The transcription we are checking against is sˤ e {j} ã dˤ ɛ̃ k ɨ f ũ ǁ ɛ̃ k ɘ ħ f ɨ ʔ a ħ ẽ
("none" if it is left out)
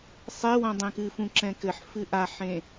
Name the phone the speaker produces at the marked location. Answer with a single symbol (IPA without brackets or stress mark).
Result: w